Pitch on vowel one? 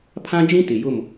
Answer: high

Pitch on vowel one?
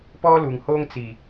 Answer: high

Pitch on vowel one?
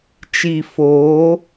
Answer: low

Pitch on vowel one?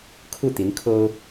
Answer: falling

